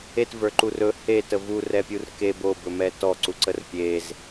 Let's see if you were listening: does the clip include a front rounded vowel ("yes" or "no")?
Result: no